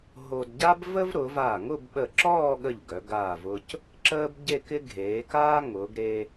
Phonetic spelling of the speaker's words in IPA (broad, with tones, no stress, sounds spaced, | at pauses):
ɦ o˧ d ɟ a˥ b v ə˥ v ɾ ʊː˩˧ v a˧˩ ŋ ʊ˥˧ b ɓ ə˧˩ ǁ ɔː˥˧ ɠ ə˧˩ ʎ ɡ œ˩˧ ɡ aː˧˩ v ʊ˧ c | ǁ əː˥ b ɟ e˥˧ k ɪ˥ ɡʱ eː˩˧ k aː˥ ŋ ʊː˩˧ ɡ ɾ eː˧